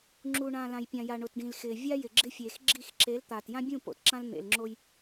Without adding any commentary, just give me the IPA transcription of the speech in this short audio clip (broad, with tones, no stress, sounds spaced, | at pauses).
ŋ͡ǁ u˨ ɳ ã˨ l ã˨ j pʲ ã˨ j a˨ ɳ ʊ˨ t ɖ ĩ˨ l x ɪː˨ vʲ a˦ j ɪ˨ ɡ͡ǁ ɪ˦ fʲ eː˨ x ɡ͡ǁ i˦˨ x ǁ e˨˦ l t̪ aː˨ t j ã˦ bʲ ũ˦˨ p o̰˨ t ǁ ã˦ l n̪ ḛ˨ l ŋ͡ǁ o˦ j